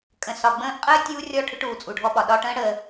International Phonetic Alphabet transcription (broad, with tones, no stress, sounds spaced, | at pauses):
kʼ ə̃˨ s ɒ˨ ɡ͡b ə̃ː˧ ʔ qʼ əː˦ tʲ uː˦ rʲ ɔ˦˨ ʈʰ ʏ˦ ʈ uː˨ t͡sʼ u˨ ɖʱ ɔ˧ ɓ ɒ˨ ɗ ɒ˧ ʈ ə̃ː˦ ɽ əː˧